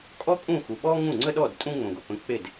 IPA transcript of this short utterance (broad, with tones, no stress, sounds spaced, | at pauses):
kʼ ɔ˥ kʼ ũ˥˩ x u˨ ɓ ɔ˥ ŋ ũ˥˩ ŋ͡ǀ ə˥ ɗ ɔ˥˩ d tʼ ũ˥ ŋ͡m õ˨ ɡ o˨ p ə̃˧˥ k͡p e˥˩ d